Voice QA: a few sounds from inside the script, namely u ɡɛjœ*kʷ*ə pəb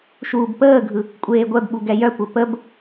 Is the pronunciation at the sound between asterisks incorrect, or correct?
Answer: correct